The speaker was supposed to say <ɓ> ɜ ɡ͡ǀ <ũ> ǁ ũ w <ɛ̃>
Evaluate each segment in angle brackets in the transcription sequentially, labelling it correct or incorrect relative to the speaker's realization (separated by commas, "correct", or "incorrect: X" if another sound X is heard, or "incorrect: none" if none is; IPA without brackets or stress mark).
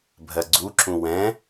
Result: incorrect: bʱ, incorrect: u, correct